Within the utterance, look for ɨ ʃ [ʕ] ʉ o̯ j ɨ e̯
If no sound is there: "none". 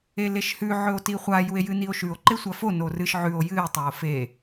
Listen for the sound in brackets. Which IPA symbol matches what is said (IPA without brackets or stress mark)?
ʕ